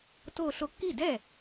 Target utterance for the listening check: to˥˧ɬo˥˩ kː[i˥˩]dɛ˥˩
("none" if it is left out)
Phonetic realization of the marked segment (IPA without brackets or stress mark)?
i˥˩